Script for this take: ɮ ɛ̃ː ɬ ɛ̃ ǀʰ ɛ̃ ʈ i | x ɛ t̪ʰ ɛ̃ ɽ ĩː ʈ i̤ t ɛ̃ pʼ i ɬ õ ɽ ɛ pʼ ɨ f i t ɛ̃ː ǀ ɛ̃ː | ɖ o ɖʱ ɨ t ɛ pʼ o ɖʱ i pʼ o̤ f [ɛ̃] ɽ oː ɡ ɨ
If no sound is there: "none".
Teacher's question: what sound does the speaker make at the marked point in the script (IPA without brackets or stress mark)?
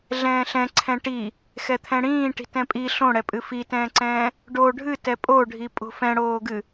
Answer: ɛ̃